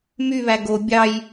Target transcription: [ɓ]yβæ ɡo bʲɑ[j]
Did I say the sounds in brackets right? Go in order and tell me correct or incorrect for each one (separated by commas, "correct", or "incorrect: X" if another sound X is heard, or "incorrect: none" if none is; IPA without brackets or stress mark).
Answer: incorrect: m, correct